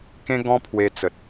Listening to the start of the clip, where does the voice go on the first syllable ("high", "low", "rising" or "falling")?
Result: high